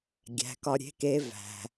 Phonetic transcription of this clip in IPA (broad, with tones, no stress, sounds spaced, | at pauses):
ɡʲ æ̤˩˧ k ɒ˧ ɾʲ e̤˧˥ k e˧˥ v æ̤˩